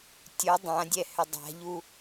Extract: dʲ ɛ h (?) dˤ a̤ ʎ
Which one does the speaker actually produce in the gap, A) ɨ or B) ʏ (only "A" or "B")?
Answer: B